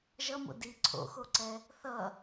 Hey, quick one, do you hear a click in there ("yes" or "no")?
yes